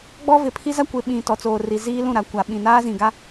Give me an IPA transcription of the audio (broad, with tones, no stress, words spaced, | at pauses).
ɡ͡bɔ˦vɪ˨pʰi˦za˦ kʷɪ˨ɓĩ˨ tɔ˨t͡soː˨ri˨ ziː˦lũ˦˨ɾa˨ kʷa˨ ɓĩ˨naː˦zĩ˨ɡa˦